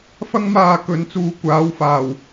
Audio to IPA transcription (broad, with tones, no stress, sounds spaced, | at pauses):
f ɐ˥ ŋ m aː˧ k ɵ˨˥ n t͡s uː˨˧ kʷ aː˨˥ w f aː˨˩ w